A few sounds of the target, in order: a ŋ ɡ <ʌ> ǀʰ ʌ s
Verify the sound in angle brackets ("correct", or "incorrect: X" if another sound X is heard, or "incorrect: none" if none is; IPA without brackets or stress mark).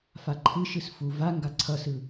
incorrect: a